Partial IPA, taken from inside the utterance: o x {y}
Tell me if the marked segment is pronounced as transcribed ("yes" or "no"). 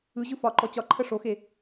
no